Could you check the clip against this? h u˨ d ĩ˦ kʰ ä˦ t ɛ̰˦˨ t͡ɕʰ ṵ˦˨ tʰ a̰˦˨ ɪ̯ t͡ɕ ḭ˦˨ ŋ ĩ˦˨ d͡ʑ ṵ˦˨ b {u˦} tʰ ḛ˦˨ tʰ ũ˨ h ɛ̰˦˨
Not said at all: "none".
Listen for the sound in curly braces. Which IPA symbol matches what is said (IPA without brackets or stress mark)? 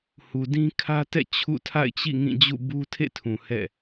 u˦